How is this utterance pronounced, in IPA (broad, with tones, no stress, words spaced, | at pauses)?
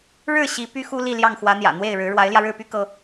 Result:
ɻɻ̩˥˩ ɕi˧˥ py˥xu˥ li˥˧ljɑ˥˩ŋxwä˧˥n̪jä̰˨˩ n̪we˥˩ɪ̯ɻɻ̩˧˥ ɻwa˧˥ɪ̯ljä˧ɻɻ̩˥˩py˥ kɤ˥